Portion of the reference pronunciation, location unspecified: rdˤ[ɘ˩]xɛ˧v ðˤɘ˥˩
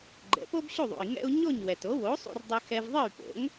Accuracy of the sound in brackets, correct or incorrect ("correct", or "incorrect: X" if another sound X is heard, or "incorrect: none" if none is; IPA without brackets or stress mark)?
incorrect: ɘ˧